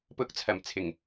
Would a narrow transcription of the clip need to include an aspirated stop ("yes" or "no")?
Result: yes